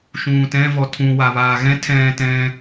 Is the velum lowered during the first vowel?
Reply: yes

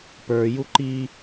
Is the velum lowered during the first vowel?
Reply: no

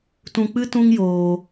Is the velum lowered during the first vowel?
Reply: yes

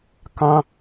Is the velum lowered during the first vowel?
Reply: yes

